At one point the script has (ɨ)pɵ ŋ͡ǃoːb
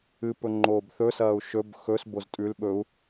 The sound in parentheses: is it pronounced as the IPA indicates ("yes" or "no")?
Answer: yes